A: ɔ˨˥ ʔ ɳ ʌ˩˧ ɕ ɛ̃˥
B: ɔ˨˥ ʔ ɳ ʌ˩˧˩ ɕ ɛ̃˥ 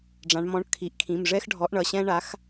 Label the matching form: B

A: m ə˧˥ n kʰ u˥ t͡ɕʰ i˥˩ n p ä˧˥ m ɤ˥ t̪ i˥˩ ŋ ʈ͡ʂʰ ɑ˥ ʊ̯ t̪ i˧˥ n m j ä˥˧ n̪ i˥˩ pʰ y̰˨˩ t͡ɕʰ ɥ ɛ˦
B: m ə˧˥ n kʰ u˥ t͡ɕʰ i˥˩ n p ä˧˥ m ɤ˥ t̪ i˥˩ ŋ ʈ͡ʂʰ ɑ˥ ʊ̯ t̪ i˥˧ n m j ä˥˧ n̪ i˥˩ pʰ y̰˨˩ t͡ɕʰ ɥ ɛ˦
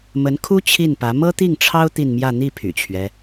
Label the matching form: B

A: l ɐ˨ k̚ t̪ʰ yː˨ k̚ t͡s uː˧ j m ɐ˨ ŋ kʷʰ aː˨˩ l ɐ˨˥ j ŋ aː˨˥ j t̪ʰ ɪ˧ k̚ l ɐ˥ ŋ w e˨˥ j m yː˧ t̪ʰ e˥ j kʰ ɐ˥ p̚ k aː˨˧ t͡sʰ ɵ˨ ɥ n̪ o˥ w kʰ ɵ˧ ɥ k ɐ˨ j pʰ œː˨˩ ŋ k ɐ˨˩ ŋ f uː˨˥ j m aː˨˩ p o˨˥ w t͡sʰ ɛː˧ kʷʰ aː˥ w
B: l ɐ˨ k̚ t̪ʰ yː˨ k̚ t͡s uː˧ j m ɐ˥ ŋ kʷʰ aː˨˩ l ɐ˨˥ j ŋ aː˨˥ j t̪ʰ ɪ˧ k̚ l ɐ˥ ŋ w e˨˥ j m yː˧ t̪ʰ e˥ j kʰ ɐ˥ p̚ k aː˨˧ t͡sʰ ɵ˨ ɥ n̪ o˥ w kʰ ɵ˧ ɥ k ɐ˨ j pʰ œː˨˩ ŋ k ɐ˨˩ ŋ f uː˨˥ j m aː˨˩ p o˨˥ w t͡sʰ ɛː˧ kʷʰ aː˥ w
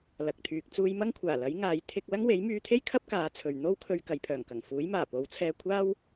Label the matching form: B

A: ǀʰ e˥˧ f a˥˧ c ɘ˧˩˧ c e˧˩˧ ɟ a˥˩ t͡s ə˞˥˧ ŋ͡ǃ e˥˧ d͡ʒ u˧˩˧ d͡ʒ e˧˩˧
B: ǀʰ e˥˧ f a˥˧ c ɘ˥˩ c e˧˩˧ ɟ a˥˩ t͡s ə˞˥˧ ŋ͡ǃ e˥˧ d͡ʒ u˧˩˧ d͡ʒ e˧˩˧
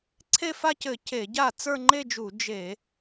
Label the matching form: A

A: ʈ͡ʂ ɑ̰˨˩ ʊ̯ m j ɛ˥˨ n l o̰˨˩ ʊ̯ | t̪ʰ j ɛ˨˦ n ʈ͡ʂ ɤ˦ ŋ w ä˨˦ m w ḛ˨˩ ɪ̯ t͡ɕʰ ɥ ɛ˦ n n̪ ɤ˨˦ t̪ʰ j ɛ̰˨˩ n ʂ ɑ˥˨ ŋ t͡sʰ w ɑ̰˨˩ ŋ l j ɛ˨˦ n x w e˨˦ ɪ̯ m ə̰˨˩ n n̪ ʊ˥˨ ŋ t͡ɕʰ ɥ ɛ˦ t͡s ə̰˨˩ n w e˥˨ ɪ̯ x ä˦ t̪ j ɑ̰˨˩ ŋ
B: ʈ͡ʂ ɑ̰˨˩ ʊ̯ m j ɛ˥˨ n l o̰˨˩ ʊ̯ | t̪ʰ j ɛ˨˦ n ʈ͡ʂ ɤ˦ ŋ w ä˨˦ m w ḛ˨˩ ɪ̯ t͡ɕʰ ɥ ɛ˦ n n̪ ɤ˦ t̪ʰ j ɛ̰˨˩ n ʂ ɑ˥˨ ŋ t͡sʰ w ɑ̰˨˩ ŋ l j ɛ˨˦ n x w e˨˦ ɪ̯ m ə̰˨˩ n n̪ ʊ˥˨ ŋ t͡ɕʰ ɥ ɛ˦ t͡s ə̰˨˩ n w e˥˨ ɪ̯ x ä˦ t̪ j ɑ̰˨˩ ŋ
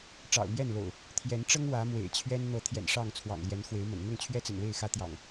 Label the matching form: A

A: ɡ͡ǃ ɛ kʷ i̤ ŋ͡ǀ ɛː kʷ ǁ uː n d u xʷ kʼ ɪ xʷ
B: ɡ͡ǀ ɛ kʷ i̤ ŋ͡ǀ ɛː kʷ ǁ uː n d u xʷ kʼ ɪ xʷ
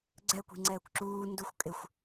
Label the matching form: B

